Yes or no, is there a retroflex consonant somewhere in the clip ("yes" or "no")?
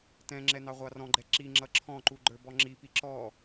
no